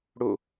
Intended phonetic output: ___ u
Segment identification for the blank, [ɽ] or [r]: ɽ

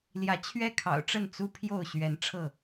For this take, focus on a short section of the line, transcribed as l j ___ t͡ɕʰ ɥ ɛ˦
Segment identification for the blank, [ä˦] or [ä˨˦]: ä˨˦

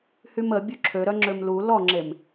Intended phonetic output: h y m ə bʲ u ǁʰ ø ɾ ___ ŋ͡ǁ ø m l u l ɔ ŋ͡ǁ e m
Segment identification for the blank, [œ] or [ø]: œ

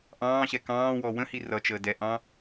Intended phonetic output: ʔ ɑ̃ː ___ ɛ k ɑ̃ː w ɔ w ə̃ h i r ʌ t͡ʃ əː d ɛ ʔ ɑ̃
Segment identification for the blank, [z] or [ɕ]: ɕ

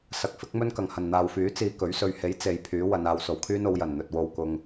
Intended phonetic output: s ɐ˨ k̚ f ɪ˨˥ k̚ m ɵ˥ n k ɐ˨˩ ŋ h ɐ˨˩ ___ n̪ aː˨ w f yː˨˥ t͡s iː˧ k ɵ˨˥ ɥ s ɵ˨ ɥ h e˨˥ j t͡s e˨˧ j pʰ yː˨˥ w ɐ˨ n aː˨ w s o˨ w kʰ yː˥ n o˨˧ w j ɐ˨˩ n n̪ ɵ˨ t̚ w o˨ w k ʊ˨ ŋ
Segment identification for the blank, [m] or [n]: n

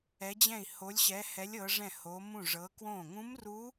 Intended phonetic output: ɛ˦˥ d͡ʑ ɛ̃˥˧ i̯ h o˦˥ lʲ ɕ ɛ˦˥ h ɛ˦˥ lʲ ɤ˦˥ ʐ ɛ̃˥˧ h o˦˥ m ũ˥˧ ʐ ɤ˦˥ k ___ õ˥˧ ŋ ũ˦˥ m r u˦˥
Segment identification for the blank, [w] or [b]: w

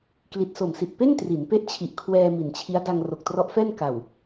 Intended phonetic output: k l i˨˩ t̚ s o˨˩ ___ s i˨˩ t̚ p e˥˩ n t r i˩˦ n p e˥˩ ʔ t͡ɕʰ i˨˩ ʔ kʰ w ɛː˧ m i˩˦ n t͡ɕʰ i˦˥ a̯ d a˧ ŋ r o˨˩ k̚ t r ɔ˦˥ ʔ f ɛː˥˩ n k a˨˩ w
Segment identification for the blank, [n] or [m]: m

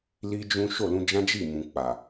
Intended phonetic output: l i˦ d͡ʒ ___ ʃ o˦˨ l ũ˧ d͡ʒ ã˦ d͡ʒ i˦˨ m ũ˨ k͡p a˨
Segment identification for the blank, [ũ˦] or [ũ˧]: ũ˦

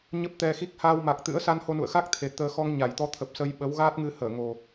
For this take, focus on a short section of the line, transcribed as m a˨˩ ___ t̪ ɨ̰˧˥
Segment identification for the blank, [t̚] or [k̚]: k̚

